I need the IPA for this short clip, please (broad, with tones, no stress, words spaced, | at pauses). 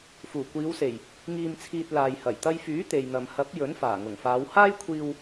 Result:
fuː˨˩kʷiː˨˧wse˨˩j | ŋiː˧mt͡sʰiː˧t̚ laː˨j hɐ˨˩jt̪ɐ˧jfyː˨˥ t̪e˨jn̪ɐ˨m hɐ˨˥p̚ jɵ˨˥nfaː˨˩ŋʊ˨˩ŋfaː˨˧w haː˥jkʷʰiː˧w